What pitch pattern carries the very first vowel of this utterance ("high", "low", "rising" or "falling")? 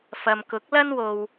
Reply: low